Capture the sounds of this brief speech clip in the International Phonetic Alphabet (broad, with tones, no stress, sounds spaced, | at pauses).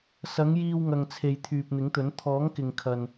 s ɐ˨˥ ŋ j iː˧ w ŋ ɐ˨ ŋ t͡sʰ e˨ j t̪ʰ yː˨ p̚ n̪ ɪ˨˥ ŋ t̪ ɵ˨˥ n t̪ʰ ɔː˨˥ ŋ k ɪ˨ ŋ kʰ ɐ˨ n